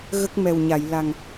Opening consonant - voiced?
yes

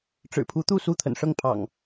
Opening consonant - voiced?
no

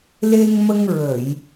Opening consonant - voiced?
yes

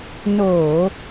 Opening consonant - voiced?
yes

